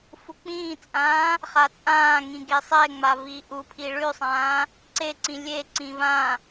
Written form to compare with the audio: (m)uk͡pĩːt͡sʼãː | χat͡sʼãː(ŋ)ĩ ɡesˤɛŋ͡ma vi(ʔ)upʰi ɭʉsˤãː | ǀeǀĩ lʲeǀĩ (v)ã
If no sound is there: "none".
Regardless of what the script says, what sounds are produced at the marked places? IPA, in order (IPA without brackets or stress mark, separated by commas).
f, ŋ, ʔ, v